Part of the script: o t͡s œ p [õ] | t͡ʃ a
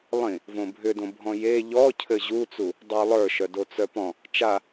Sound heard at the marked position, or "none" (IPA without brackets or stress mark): ɔ̃